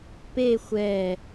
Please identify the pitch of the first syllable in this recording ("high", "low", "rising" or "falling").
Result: falling